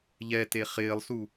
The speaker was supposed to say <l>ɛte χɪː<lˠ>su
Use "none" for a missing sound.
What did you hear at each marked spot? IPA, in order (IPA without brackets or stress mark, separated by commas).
ʎ, lˠ